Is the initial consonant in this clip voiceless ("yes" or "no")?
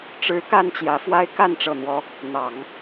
yes